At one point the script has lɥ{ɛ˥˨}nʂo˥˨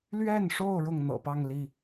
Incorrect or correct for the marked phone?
correct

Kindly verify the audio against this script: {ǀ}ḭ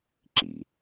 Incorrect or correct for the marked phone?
incorrect: ǁ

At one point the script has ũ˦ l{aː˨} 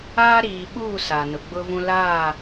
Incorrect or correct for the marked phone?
incorrect: aː˦˨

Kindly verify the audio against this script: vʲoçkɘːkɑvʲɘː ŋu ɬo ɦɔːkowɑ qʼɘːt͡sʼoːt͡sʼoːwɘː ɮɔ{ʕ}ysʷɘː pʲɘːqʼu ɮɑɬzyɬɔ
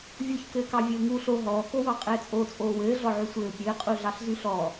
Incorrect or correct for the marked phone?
correct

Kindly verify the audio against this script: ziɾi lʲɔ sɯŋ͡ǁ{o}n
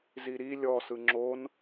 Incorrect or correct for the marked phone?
correct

